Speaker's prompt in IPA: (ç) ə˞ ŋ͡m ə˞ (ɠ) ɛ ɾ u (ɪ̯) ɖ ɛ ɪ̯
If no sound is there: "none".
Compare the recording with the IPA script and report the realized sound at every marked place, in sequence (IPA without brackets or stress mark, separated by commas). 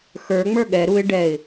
x, ɠ, ɪ̯